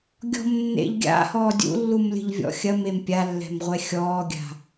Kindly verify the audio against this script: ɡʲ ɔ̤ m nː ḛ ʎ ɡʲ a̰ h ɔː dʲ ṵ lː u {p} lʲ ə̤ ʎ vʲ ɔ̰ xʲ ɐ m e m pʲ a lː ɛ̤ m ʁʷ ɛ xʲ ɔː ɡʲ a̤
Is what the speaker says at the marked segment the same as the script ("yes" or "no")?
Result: no